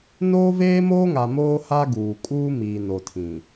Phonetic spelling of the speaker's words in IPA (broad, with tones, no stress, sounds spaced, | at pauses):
n oː˦ v eː˦ m oː˦ ŋ a˨ m oː˦ h a˦ ɡ uː˨ kʼ uː˦ m iː˨ n o˨ tʰ ĩ˨